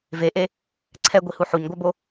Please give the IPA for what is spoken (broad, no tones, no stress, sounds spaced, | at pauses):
v e ʔ e | ǀʰ ɛ ɡʷ i h u ħ u ɲ ɡʷ a b o